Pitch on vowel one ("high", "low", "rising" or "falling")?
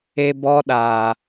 high